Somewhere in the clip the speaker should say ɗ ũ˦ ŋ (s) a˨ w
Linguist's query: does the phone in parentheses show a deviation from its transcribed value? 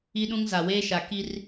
yes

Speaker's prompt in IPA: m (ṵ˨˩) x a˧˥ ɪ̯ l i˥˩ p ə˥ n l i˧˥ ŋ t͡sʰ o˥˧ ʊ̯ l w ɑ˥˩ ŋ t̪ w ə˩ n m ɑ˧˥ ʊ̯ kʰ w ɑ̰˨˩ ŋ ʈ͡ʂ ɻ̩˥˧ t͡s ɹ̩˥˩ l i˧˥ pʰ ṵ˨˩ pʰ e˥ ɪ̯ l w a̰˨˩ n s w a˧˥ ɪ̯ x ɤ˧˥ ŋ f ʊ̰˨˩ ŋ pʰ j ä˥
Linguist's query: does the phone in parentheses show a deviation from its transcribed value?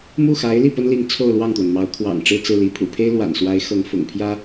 yes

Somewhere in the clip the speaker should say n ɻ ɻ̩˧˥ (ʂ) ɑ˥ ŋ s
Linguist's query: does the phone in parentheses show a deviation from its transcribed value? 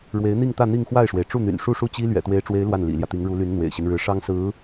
no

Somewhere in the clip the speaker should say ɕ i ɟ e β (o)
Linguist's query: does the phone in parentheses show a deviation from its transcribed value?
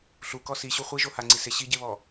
yes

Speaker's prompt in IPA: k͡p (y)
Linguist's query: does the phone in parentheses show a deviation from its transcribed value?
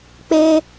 yes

